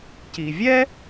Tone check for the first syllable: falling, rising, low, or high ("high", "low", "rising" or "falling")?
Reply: low